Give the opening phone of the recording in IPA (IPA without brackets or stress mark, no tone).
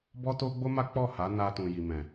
b